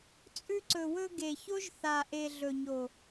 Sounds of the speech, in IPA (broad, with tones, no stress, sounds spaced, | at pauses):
t͡sʼ ʉ˧ ǀ ɵ˨ w ɵ˧ ɡ e˨ ç o˦ ʒ θ a˨ ʔ e˨ ɮ ɵ˨ ɲ o˨